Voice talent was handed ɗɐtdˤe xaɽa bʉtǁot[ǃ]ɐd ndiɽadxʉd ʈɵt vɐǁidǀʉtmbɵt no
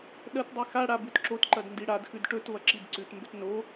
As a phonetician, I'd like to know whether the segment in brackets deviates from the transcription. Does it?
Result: no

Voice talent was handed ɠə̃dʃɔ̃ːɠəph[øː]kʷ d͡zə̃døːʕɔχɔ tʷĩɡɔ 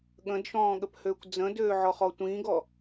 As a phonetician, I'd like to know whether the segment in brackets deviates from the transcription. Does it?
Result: no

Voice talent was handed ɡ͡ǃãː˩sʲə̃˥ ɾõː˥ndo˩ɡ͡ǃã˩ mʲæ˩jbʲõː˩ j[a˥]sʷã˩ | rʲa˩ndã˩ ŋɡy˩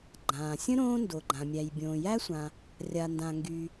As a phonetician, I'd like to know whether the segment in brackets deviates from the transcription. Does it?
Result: yes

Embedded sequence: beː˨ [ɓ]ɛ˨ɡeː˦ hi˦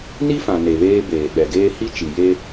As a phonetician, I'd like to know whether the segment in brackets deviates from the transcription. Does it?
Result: no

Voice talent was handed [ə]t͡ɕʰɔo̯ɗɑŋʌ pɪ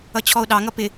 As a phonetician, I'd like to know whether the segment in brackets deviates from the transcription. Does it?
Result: yes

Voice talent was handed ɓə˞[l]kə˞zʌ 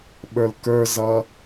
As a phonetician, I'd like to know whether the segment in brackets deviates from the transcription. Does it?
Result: no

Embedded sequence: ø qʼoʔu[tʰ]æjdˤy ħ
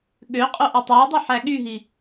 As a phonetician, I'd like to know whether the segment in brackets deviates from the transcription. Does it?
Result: yes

